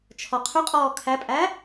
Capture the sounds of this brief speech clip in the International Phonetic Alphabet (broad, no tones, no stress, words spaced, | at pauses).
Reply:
t͡ʃʰɔqʰʏqʼɔː kʰæpʼæ